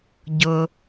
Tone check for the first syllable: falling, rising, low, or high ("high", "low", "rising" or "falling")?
low